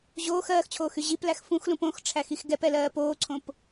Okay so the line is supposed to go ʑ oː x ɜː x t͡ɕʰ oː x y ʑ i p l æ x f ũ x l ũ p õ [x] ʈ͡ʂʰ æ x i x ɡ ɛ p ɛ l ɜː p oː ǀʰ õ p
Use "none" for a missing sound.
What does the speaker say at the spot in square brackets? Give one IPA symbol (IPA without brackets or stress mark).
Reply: x